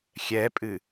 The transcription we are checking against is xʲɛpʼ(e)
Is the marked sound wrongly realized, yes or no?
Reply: yes